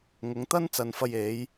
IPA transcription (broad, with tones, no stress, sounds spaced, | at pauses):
ŋ ʊ˨˧ ŋ t̪ ɐ˥ n t͡s ɐ˧ n f ɐ˧ j e˨˧ j